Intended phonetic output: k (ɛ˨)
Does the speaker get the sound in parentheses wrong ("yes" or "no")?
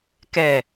no